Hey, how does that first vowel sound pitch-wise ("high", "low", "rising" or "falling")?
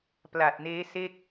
low